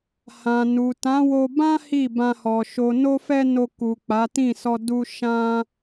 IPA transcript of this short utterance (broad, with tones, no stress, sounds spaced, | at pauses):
h ã˨ n u˨ t ã˨˦ w o˧ b ã˦ h i˦˨ b ã˧ h ɔ˨ ʃ o˨ n o˧ f ɛ˧ n o˧ k u˨ k͡p a˨˦ t ĩ˦˨ s ɔ˧ d u˧ ʃ ã˦